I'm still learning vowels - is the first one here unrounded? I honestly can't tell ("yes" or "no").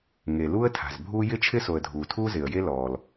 yes